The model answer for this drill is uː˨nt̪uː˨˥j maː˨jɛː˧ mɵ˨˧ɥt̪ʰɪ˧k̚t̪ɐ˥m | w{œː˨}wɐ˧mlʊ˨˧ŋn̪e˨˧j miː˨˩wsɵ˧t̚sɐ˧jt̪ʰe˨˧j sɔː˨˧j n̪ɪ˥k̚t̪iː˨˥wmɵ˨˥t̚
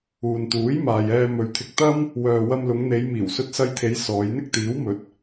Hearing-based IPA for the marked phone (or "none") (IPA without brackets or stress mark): œː˨